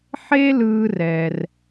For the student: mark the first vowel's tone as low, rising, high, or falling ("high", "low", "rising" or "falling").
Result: high